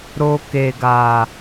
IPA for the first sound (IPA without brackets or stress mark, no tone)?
ɾ